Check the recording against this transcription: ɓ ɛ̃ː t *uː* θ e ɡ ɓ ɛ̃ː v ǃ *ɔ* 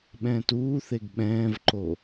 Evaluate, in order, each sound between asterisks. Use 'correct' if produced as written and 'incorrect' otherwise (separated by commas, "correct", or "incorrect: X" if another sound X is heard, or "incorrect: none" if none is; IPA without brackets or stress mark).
correct, incorrect: o